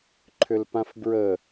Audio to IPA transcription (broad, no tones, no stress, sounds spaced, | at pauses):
ǃʰ ʏ l p ã f b ɹ ə